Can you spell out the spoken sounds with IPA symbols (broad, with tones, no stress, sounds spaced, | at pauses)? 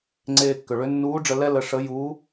ŋ͡ǀ eː˧ kː ʏ˩ ɭ ʏ˧˥ nː uː˧˥ ɖ͡ʐ ə˧ l ɛ˥ l ə˧ ʂ ə˧˥ j uː˧˥